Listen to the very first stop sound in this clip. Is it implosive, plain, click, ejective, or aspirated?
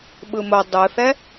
implosive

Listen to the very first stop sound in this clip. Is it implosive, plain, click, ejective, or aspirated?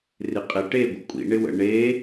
ejective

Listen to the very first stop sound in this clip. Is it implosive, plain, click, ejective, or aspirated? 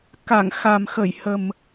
plain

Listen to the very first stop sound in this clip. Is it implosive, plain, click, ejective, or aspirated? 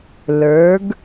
plain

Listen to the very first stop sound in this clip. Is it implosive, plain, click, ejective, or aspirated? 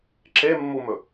click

